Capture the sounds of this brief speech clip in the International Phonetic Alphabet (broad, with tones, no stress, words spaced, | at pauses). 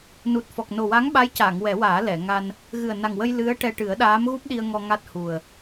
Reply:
nu˨˩t̚fɔ˨˩k̚ no˨˩wa˧˥ŋɓa˧˥jcaː˨˩˨ŋ wɛ˨˩˦waː˨˩˦ lɛ˨˩˨ŋa˧n | ɣɨ˨˩ə̯na˨˩ŋwə˧j lɨ˧˥ə̯ʈɛ˧ ʈɨ˨˩˦ə̯ɗaː˧˥m ɣu˦˥p̚ɗi˧ə̯ŋɔ˧ ŋa˦˥t̚hu˨˩ə̯